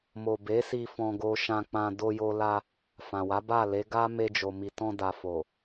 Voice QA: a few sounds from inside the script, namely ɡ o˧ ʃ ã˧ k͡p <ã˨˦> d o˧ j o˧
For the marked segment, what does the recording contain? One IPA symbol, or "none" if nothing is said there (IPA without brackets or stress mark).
ã˧